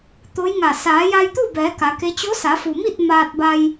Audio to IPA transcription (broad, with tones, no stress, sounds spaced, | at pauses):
t̪ o˧˥ j ŋ a˧˩ s aː˩˧ j a˧ j t̪ u˥˨ b ɛː˩˧ k a˩˧ k e˧˥ t͡ɕ o˧˥ s a˩˧ f u˩ m i˥˨ t̚ m aː˧ t̚ b a˧ j